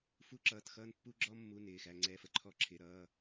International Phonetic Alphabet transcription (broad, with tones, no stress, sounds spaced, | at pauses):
f u˥ ǁ ʌː˧˥˧ t x ʌː˥ n pː u˥ ɡ͡ǁ ɔ˥ mː u˧˥˧ n ɪː˧˥˧ x æ˥ ŋ͡ǀ ɛː˥ f ə˧˥˧ ǃʰ ɔ˥ ǁʰ ɪ˧˥˧ ɾ ʌː˧˥˧